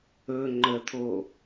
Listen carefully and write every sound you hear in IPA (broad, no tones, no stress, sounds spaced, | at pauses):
ɵ ŋ͡ǃ ə t̪ʰ o